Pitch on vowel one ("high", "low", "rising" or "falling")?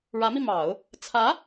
rising